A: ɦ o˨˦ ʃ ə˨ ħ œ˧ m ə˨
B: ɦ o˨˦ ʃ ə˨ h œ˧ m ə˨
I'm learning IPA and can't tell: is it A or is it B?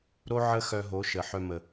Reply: A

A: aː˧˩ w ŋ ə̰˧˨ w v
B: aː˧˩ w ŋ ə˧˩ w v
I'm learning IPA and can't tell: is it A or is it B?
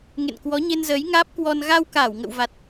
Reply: A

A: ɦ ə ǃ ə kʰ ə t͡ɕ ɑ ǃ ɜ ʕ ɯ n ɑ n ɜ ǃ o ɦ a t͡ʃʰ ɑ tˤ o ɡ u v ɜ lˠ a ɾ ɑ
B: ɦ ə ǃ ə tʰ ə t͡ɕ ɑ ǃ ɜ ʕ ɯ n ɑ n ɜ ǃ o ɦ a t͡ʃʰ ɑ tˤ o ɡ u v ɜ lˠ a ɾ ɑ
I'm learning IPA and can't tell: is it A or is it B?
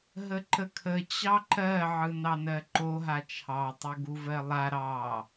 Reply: A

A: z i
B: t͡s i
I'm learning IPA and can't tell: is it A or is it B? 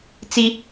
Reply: B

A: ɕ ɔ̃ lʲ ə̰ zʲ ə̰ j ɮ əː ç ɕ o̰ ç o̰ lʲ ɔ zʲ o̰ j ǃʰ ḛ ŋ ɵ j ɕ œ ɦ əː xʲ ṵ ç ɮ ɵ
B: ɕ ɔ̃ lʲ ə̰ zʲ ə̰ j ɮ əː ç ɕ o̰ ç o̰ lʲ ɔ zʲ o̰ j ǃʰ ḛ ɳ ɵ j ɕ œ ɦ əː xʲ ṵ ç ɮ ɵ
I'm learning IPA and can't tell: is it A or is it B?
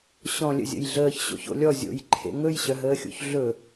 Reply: A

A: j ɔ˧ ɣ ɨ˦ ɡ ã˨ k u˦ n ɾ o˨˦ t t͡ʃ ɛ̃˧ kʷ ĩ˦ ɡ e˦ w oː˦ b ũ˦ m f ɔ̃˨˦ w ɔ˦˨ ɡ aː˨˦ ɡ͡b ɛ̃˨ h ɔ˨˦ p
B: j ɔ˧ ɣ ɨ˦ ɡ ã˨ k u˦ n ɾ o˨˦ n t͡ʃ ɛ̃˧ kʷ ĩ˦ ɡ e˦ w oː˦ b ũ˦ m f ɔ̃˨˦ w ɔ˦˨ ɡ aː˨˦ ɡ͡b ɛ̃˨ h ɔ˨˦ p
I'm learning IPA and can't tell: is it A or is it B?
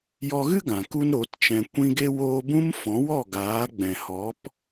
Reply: A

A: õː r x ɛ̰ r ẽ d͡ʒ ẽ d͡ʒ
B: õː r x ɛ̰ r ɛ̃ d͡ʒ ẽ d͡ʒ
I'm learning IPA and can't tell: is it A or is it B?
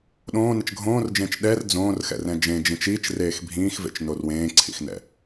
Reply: B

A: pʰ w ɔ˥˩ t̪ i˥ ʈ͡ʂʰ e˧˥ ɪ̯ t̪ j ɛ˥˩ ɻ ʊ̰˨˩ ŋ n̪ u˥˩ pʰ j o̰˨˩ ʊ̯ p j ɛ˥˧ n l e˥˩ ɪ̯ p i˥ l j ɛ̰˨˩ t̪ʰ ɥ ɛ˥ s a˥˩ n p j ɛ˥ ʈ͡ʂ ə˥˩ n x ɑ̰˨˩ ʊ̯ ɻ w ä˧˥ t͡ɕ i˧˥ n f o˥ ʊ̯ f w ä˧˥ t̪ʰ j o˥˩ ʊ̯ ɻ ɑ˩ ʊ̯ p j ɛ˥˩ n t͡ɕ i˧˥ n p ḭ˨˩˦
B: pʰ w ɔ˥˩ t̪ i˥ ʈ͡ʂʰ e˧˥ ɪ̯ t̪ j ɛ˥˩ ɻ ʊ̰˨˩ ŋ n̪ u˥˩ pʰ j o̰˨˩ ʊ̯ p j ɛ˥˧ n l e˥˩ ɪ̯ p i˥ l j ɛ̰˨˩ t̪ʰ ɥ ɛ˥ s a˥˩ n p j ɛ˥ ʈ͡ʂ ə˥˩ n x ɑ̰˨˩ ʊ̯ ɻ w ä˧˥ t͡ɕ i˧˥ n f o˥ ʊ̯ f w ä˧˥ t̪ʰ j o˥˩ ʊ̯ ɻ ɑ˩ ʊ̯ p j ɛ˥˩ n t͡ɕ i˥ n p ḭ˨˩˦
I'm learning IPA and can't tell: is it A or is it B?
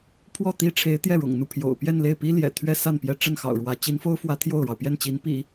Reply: A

